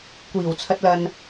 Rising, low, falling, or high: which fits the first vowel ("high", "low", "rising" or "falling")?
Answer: low